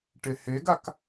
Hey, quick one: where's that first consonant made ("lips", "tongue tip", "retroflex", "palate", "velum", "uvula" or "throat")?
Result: retroflex